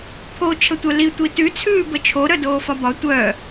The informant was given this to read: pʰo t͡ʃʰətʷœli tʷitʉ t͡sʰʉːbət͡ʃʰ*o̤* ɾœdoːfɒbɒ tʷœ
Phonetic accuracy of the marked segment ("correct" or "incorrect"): incorrect